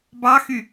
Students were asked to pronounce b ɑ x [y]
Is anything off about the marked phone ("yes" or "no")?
no